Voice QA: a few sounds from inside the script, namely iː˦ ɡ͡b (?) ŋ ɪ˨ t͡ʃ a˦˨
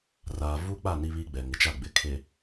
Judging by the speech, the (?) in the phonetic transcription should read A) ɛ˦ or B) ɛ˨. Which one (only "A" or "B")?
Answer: B